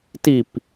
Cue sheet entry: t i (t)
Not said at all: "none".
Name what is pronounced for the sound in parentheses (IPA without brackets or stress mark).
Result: p